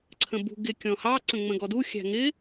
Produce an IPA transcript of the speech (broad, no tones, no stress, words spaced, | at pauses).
ǀʰə̃bṳ ɡɪ kʲɔ̃hɑ ǀə̃ŋ͡mə̃ɡɔdu xʲæ̤ŋɪ